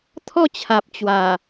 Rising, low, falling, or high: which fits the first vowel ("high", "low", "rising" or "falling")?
falling